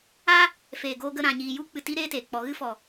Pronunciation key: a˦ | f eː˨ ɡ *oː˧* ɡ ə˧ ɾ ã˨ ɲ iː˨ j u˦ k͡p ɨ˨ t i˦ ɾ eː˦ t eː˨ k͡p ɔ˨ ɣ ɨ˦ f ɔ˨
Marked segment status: correct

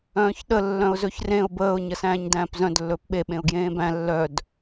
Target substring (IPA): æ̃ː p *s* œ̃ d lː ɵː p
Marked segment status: incorrect: z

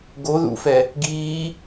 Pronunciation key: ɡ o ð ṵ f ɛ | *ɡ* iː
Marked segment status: correct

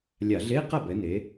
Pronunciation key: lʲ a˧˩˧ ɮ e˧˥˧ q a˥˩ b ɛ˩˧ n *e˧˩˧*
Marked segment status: incorrect: e˩˧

